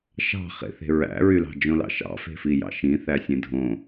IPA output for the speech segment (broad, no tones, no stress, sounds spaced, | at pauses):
ʃ ɑ̤ χ ḛ θ e̤ ɹ æ̰ ɹ y l ɑ̤ d͡ʒ õ l ɑ̰ ʃ ɑ̰ f e̤ f i j ɑ̰ ʃ ĩ θ æ sʲ ẽ dʱ õ